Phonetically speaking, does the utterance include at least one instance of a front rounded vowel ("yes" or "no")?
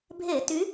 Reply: yes